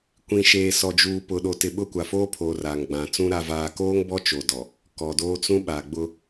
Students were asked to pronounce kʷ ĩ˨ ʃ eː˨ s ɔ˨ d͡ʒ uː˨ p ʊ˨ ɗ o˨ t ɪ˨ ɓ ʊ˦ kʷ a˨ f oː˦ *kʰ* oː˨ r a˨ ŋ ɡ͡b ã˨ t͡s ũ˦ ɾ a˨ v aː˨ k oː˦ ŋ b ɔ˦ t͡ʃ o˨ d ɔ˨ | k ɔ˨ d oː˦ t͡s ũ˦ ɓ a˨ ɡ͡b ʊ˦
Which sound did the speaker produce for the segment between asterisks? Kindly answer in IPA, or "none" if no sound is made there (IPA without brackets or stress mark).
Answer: pʰ